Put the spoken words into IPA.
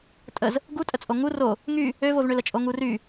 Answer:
tʼ ə z | ɡ u tʼ ə t͡sʼ o ŋ u r o | ŋ y | ø v o v ɳ ø l ə t͡ʃʼ o ŋ u r y

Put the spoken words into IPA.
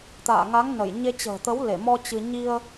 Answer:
t̪ a̰ː˧˨ ŋ a˨˦ ŋ n ə˧˩ j ɲ e˧ t͡ɕ ə̤ː˨˩ t̪ ə˨˦ w l e˧˩ m ɔ˧ t͡ɕ ɨ˧ ɲ i˧ ə̯

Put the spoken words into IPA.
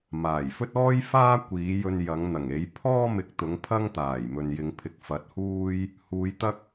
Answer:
m aː˨˩ j f ɵ˥ t̚ ɔː˥ j f aː˥ kʷ iː˨˥ j ɵ˧ n j ɐ˨˥ ŋ n̪ ɐ˨˩ ŋ e˨˥ j pʰ ɔː˥ m ɪ˨˥ k̚ t̪ ʊ˨˥ ŋ pʰ ɐ˥ ŋ t̪ aː˨˩ j m ɵ˨ n j ɪ˨˧ ŋ pʰ ɪ˨ k̚ f ɐ˨˥ t̚ h uː˥ j | h uː˨˧ j t̪ ɐ˥ k̚

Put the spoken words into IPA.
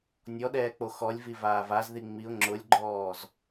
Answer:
nʲ ɔ ɗ ɛː k͡p o x ɔ lʲ v i v aː v a z ð i ŋ͡m i ʊ̯ ŋ͡ǁ ʊ lʲ ɡ͡ǃ ɔː z

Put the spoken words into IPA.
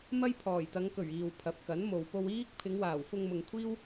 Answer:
m ɐ˥ j pʰ ɔː˨˩ j t̪ ɐ˨˧ ŋ k ɵ˨˩ ɥ iː˨ w pʰ ɐ˨˥ p̚ k ɐ˨˥ n m o˨ w p o˧ w iː˥ k̚ pʰ ɪ˨˧ ŋ w aː˨˩ w f ʊ˧ ŋ m ʊ˨ ŋ kʷʰ iː˥ w

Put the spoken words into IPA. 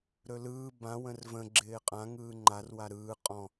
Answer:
ɾ ɵ l ɯː b ã w ə̃ r v ə̃ ɡ͡ǁ ɪː qʼ ã ŋ ɯː ŋ͡ǃ a r w a ɾ ɯː qʼ ɔ̃

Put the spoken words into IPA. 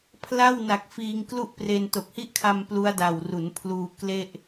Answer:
pʰ l a˥˩ w n a˨˩ k̚ f iː˧ ŋ k l u˥˩ ʔ p r e˧ n t o˨˩ k̚ h i˦˥ ʔ kʰ a˧ m p l u˦˥ a̯ d a˨˩ w r u˩˦ n pʰ l uː˧ k l e˥˩ ʔ

